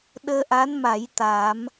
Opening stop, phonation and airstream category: implosive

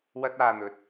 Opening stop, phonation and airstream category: plain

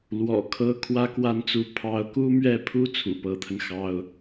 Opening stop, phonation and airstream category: aspirated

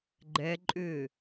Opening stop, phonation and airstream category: click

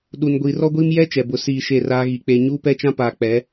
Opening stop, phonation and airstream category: implosive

